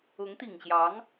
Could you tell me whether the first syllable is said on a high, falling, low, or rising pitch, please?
rising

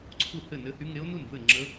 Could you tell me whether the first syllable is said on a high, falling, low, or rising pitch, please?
falling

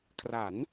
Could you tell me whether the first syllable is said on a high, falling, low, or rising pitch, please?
rising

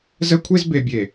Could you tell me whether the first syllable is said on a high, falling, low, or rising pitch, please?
high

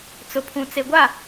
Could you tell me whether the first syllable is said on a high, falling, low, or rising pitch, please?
low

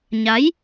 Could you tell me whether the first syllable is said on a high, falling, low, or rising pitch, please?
rising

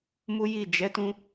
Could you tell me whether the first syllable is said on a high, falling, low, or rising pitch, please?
high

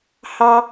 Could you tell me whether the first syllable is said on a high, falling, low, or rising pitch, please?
high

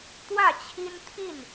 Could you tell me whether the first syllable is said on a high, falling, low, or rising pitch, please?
falling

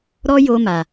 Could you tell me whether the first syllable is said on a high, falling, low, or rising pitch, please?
high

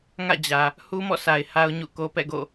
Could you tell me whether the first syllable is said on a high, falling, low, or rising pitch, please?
falling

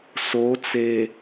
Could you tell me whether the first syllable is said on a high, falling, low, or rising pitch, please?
rising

